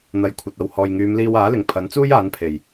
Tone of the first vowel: rising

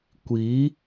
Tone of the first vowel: rising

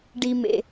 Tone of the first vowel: low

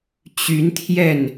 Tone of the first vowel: rising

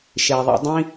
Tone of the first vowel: low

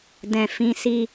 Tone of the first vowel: low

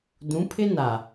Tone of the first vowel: rising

